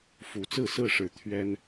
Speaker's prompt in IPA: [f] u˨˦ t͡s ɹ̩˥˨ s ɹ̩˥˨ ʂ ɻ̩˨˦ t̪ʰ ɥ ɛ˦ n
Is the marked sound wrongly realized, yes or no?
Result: no